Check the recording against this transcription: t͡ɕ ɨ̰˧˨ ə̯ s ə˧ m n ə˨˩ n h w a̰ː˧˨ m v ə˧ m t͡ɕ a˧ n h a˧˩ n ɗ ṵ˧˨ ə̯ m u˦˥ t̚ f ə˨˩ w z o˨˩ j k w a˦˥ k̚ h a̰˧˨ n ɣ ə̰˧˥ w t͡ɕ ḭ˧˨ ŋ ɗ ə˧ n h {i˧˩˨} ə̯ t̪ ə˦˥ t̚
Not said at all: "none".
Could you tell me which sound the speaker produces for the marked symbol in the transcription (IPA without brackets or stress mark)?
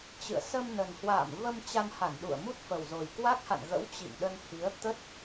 i˨˦